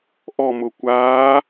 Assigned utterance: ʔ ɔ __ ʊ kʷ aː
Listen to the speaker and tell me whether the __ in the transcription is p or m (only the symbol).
m